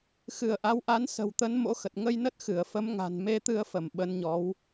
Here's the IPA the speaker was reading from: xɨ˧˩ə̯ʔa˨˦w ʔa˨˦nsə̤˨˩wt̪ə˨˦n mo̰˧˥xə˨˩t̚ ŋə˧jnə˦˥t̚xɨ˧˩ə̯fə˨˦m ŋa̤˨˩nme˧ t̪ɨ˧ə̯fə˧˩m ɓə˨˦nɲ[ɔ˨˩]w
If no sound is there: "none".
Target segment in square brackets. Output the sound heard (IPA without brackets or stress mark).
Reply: ɔ˨˦